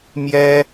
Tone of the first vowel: high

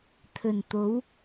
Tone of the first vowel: low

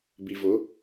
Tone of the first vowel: low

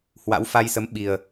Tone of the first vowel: rising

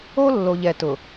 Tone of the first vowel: high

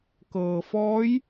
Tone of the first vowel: low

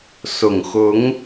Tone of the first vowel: low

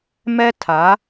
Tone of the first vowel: high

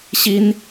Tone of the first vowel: high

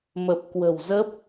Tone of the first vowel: low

